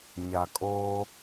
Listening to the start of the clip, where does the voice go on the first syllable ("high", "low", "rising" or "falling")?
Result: low